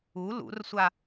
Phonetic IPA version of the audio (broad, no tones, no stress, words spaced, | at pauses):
u lṵrsʷa